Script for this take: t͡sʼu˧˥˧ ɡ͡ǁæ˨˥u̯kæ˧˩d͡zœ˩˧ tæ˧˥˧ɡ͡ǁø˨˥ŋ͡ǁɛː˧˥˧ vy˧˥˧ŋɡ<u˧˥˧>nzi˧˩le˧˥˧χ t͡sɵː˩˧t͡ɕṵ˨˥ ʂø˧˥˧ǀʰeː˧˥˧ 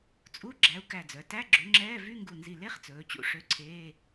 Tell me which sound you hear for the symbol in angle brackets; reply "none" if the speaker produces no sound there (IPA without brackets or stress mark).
u˧˩